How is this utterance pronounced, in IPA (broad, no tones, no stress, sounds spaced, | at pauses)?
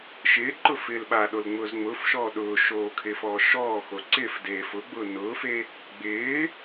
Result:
ʃ ɪː ǃ ʊ f ɪː l ɓ a ɗ o l ŋ͡m ʊː z ŋ͡m ʊː f ʃ ɔː ɗ ʊː ʃ oː kʰ ɪː f ɔː ʃ ɔː x o ǀ ɪː f d eː f ʊ ɡ͡b ʊː n ʊː f e | ɡ͡b ɪː